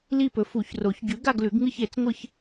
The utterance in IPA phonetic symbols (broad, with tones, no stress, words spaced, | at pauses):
li˥˧pɵ˨˥ fu˨˩˦çro˨˩˦ç ɟʉ˨˥ɡa˥˧ɡlʉ˨˩˦ɡŋɨ˥˧ç e˨˩˦t͡sŋʷɨ˥˧ç